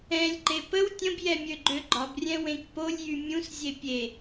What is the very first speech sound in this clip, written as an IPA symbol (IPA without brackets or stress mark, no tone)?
ɛ̃